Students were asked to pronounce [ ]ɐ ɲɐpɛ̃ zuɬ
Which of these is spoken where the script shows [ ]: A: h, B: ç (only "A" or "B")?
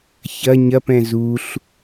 B